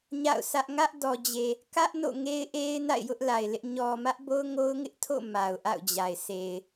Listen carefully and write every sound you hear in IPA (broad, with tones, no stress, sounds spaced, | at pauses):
ɲ a̰˦˨ ʊ̯ s ä˦ ʔ ŋ ä˦ ʔ d ɔ˨ d͡ʑ e˨ | k ä˦ ʔ n o̰˦˨ ŋ e˦ ɪ̯ ʔ e˦ ɪ̯ n a̰˦˨ ɪ̯ j ʊ˦ ʔ l a˨ ɪ̯ l ɪ˦ ʔ ɲ ɔ˨ m ä˦ ʔ b o˦ ʊ̯ ŋ o˦ ʊ̯ ŋ ɪ˦ ʔ tʰ o̰˦˨ m a˨ ʊ̯ ʔ a̰˦˨ ʊ̯ d͡ʑ a˨ ɪ̯ s e˨ ɪ̯